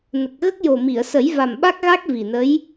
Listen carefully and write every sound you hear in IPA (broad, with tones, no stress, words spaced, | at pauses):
nə˨˩k̚ ɣə˦˥k̚jo˨˩mi˨˩˨ə̯ sə˨˩˦jva˨˩mɓa˦˥k̚ɣa˦˥k̚ vi˨˩nə˧˥j